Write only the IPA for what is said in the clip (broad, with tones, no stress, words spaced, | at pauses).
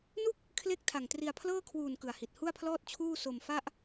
nu˥˩k̚ | kʰle˥˩k̚ tʰa˨˩ŋtri˧a̯ pʰlɤː˥˩kʰwuː˨˩n kɯ˨˩a̯hi˨˩t̚ hu˥˩a̯pʰlɔː˥˩t̚ t͡ɕʰuː˥˩ so˧m fa˥˩ʔ